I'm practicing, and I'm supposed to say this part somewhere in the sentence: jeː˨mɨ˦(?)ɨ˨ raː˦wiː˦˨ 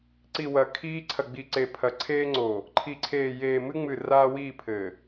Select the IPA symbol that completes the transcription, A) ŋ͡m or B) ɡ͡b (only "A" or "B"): A